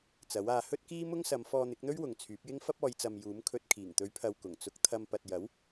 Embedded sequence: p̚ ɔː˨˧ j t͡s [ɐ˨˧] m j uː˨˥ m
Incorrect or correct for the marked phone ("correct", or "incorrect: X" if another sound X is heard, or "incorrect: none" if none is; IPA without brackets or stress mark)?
incorrect: ɐ˨